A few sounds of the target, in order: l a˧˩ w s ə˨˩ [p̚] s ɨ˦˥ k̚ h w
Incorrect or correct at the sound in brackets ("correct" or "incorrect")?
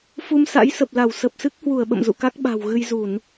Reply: correct